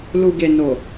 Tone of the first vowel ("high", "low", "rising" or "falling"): low